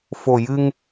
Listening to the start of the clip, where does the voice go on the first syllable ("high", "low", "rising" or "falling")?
low